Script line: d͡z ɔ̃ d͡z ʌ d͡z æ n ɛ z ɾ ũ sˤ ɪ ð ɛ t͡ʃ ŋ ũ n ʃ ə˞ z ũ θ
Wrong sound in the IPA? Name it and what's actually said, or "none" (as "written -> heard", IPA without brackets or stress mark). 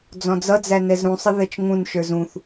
none